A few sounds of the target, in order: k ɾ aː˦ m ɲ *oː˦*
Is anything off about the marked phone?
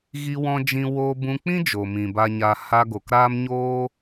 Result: no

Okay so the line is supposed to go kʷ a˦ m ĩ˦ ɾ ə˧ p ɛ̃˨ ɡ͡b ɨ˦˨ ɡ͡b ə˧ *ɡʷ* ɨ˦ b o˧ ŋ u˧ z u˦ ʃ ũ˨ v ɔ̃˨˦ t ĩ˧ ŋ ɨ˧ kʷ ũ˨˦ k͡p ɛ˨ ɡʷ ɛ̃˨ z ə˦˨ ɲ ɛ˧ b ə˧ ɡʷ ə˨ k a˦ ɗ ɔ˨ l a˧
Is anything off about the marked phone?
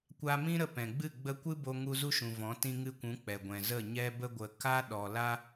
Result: yes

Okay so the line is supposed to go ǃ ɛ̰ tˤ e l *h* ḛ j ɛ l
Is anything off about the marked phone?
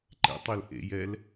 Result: yes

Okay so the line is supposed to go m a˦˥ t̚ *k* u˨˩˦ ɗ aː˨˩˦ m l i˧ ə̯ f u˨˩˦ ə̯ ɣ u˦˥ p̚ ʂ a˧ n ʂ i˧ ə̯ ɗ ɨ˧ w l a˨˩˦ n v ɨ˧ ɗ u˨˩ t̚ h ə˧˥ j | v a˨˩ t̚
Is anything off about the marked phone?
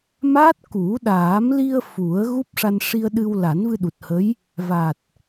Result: no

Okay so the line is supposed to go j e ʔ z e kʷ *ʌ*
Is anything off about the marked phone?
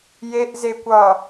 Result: no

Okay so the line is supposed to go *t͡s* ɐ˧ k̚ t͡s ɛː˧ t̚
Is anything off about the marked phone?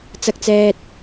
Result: no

